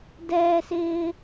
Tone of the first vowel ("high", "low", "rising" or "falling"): high